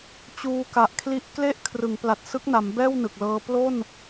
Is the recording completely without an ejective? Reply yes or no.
yes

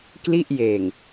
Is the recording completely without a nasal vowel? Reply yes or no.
yes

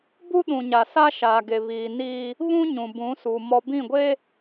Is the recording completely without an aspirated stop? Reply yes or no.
yes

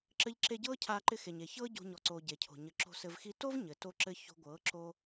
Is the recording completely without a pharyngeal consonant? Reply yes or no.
yes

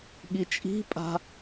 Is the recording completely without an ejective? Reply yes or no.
no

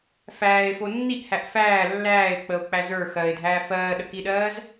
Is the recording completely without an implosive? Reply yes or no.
no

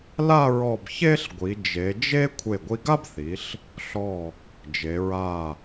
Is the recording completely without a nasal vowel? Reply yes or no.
yes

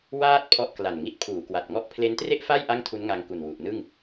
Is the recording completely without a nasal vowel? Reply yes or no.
yes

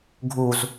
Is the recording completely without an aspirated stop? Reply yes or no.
yes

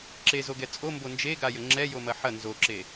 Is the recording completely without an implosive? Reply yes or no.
yes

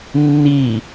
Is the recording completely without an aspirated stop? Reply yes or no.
yes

